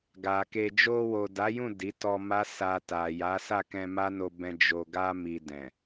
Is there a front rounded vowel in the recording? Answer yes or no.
no